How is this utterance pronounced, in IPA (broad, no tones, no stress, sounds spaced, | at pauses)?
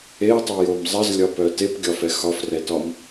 e j tˤ œ j o m zˤ ʌ z lʲ ɒ p œ t e p ɡʲ ɒ f ɛ x ɒ f r ɛ t ɒ m